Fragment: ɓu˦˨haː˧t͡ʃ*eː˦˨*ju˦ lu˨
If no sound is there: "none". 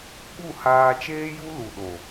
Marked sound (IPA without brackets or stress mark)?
eː˦